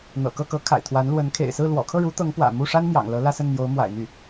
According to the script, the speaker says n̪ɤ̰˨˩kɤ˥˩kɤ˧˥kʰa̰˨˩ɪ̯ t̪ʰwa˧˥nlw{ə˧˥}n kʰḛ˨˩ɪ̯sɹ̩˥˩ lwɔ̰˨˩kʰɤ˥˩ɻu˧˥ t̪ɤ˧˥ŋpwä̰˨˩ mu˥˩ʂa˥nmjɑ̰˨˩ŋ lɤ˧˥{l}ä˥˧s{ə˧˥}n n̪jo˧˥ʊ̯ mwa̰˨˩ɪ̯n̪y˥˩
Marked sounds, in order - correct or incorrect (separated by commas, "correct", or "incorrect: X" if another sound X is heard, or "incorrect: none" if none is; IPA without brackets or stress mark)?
correct, correct, incorrect: ə˥˩